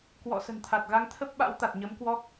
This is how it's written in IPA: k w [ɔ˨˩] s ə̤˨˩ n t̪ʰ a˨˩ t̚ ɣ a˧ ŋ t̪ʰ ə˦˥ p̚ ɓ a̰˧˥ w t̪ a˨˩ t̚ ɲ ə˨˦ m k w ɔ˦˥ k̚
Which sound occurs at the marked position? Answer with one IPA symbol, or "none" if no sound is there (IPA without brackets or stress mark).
ɔ̰˧˨